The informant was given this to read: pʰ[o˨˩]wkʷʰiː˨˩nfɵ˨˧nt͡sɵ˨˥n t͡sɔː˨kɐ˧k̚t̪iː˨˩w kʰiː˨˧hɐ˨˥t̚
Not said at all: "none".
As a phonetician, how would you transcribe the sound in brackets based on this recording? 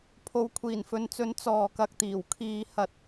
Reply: o˨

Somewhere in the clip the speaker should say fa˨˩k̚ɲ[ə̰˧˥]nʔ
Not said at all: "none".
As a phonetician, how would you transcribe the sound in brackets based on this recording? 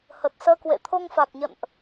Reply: ə̰˧˨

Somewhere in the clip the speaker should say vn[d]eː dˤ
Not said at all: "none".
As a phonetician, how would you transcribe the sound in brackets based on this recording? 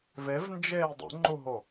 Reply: d͡ʒ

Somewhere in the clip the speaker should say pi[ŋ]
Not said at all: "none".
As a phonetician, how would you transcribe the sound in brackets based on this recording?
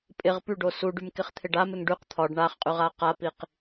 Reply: q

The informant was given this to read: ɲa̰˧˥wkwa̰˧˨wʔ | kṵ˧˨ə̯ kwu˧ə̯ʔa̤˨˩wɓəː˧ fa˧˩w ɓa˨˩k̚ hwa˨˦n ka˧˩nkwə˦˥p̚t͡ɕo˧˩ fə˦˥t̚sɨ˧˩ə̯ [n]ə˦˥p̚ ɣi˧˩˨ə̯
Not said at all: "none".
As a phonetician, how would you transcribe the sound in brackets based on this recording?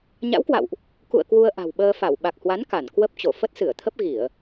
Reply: t̪ʰ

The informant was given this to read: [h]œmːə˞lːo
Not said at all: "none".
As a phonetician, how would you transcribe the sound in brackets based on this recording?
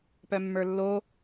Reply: p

